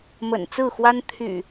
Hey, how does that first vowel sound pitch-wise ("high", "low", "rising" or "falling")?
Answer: low